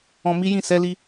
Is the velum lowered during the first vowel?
yes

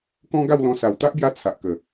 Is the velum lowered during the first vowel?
yes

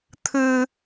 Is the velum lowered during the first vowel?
no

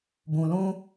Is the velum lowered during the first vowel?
yes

